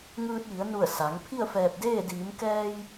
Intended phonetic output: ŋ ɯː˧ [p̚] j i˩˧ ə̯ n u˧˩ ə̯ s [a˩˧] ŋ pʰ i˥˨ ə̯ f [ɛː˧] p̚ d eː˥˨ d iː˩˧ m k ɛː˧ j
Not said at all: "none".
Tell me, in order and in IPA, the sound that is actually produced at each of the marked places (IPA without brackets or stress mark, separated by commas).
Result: t̚, a˩˧, ɛː˧˩